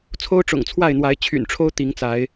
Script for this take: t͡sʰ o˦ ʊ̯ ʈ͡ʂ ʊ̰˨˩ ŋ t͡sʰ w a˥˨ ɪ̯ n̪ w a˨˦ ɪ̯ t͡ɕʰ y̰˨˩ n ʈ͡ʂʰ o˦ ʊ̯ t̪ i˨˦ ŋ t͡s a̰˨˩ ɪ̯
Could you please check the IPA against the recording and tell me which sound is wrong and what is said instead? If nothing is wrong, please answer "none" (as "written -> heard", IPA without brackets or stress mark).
a̰˨˩ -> a˨˦